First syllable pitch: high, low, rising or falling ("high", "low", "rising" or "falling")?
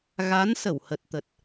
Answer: rising